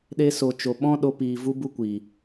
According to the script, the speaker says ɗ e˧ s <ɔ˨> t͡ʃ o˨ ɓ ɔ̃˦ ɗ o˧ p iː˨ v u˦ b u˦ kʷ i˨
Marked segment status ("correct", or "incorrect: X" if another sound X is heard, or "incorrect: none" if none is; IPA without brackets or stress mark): incorrect: o˨